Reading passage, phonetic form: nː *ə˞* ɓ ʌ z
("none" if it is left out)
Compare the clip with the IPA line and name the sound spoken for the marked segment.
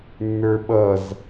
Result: ə˞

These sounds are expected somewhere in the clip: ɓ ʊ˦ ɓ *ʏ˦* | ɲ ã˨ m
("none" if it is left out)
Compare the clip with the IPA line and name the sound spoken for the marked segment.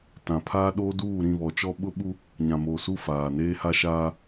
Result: u˦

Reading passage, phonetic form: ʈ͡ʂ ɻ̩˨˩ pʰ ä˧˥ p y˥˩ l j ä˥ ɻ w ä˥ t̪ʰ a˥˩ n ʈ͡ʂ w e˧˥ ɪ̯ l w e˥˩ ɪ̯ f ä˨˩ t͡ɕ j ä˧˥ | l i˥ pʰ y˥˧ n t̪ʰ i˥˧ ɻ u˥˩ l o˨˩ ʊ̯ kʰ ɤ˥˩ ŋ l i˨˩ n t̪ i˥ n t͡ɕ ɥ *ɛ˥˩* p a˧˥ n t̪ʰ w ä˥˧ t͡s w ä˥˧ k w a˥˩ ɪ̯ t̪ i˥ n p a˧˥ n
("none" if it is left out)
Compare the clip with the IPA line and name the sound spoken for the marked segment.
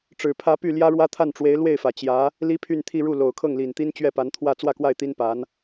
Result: ɛ˥˩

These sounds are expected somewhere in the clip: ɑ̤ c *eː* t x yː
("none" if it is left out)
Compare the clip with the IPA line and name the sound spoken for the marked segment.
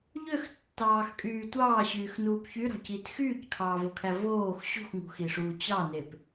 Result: iː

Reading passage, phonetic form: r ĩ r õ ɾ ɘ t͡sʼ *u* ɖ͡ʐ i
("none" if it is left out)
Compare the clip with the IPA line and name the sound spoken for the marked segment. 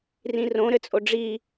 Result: o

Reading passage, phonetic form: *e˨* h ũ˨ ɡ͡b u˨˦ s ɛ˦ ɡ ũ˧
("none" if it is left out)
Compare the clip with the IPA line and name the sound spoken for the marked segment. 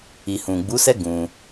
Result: i˨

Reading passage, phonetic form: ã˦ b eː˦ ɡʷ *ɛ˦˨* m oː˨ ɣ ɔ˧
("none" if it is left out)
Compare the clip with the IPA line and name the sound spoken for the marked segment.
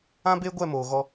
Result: ɛ˦˨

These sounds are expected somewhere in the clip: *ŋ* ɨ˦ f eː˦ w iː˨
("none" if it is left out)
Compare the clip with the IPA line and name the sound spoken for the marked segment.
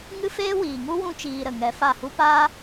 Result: ŋ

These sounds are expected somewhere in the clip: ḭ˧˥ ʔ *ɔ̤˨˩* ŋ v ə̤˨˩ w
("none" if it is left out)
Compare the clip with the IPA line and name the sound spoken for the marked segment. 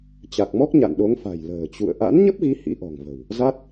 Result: ɔ̤˨˩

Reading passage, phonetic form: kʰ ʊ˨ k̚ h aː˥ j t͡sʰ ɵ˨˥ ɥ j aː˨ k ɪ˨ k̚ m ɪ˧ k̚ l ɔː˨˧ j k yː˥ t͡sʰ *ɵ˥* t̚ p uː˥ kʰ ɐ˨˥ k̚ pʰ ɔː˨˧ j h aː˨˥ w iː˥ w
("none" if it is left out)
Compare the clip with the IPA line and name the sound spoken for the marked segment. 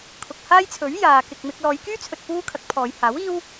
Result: ɵ˨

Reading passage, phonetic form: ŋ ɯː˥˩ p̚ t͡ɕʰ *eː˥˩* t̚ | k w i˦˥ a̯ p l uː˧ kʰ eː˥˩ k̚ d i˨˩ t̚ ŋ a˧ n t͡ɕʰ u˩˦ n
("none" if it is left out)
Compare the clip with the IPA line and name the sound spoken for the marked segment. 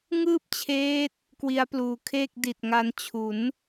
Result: eː˦˥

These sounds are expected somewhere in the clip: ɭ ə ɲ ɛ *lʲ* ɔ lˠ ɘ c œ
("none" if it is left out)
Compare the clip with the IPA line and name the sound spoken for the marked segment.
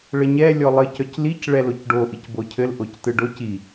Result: lʲ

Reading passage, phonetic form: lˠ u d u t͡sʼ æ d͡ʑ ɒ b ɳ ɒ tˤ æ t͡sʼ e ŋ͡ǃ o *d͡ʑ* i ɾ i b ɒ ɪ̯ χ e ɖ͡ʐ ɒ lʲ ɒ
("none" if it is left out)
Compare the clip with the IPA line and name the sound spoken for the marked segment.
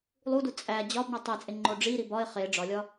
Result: ɖ͡ʐ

